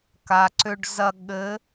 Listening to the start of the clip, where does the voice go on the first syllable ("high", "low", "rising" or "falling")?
low